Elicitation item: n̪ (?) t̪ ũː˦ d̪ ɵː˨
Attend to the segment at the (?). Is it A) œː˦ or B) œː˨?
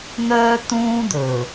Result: A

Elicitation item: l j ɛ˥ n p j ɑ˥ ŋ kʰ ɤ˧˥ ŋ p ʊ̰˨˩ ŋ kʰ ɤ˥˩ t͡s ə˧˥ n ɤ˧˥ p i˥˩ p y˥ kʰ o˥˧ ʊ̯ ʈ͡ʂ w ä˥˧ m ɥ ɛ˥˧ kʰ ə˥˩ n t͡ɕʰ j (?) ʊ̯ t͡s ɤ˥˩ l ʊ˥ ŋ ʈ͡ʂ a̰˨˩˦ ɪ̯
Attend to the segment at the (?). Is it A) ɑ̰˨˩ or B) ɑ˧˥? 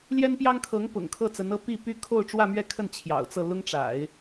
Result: A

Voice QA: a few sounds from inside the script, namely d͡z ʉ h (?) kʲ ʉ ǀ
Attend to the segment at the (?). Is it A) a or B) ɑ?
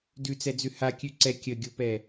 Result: A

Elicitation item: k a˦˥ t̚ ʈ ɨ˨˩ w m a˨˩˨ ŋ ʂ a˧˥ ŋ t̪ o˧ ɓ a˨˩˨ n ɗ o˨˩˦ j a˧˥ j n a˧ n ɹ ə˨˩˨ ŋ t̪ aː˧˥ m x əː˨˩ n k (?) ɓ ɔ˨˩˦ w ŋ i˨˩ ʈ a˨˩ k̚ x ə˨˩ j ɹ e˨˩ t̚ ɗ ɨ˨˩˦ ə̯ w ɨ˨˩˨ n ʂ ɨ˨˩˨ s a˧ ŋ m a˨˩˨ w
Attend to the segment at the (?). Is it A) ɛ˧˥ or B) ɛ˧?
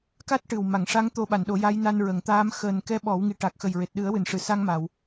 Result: A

